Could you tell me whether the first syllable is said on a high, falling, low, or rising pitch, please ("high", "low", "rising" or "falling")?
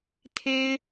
high